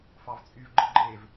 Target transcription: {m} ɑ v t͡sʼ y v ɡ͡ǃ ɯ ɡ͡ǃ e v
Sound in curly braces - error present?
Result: yes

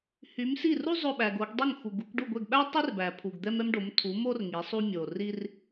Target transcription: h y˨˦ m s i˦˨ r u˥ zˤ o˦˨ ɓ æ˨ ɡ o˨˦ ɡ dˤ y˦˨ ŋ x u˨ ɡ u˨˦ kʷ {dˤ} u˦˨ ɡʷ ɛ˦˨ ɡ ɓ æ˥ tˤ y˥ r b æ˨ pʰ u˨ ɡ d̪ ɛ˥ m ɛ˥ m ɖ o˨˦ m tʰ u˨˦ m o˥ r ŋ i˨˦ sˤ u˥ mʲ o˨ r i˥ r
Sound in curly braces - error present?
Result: yes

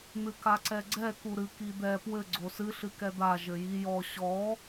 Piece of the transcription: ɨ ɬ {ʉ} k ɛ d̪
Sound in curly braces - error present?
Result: yes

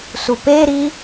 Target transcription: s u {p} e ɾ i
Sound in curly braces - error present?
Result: no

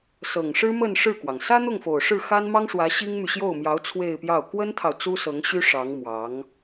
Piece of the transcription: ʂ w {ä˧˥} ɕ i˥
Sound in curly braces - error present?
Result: no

